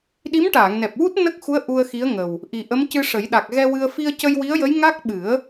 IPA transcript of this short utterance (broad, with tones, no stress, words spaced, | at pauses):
ɗi˧˥mʈaː˨˩˨ŋnɛ˨˩p̚wu˦˥t̚ nə˦˥k̚xu˧˥ə̯ ʔu˧ə̯xi˧˥ə̯ŋə˨˩w | ʔi˨˩ʔə˧˥mcɨ˧ʂə˨˩˦j ɗa˨˩k̚ɣɛ˧ wɨ˧ə̯ fi˧ə̯cə˧jwi˧˥ə̯jə˧˥j ŋa˦˥k̚ ɓɨ˨˩˦ə̯